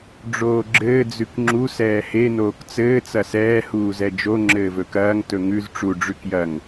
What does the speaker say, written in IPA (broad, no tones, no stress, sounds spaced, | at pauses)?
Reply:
ɖ͡ʐ oː ɡ͡ǁ ɘː d͡z ʉ k ŋ͡ǁ u s ɛː h e n oː k t͡s ɘː t͡s ɐ s ɛː h uː z ɛ d͡ʒ o ŋ͡ǁ ɘː v ɵ k ɐː ŋ t ɵ ŋ ʉ z ʈ͡ʂ u ɖ͡ʐ ʉ k j ɐ ŋ